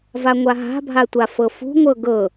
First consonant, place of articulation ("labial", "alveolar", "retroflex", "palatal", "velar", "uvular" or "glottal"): labial